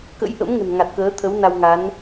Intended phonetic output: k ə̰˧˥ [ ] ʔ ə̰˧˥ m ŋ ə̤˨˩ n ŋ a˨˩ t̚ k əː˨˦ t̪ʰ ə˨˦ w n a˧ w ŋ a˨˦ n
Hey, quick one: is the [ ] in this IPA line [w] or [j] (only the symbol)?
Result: j